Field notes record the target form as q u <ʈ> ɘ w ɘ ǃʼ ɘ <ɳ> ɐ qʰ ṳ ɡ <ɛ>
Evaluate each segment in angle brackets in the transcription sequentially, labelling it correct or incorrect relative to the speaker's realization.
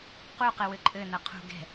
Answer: incorrect: q, incorrect: n, incorrect: ɛ̤

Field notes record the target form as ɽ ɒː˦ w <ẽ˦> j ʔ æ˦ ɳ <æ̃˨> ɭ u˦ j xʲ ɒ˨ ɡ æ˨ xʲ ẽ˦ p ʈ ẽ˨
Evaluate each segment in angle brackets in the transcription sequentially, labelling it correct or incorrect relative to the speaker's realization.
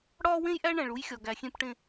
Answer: correct, correct

